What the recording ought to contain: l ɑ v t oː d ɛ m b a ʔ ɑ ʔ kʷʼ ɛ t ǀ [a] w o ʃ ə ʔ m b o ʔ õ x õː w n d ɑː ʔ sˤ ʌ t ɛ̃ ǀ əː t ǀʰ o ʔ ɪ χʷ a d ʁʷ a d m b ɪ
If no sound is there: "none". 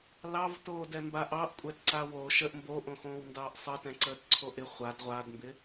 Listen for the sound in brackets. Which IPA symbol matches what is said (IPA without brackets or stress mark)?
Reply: a